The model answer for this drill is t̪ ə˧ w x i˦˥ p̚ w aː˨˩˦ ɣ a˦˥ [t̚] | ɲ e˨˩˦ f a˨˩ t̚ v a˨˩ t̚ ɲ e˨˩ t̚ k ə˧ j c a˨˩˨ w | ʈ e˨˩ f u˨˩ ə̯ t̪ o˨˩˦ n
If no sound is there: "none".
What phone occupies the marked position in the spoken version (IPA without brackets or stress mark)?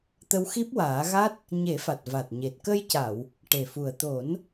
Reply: t̚